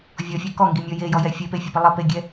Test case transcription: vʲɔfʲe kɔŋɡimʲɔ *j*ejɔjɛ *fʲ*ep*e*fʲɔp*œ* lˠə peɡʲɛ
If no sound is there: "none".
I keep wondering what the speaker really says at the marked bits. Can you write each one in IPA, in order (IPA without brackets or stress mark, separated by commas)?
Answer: j, fʲ, e, ə